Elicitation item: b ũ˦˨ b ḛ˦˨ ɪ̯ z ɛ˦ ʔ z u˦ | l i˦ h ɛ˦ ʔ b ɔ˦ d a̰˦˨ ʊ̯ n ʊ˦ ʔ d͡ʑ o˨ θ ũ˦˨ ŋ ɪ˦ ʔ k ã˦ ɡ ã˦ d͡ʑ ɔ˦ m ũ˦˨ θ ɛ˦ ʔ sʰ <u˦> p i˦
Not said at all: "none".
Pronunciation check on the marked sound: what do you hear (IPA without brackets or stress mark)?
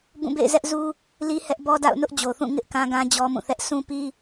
ũ˦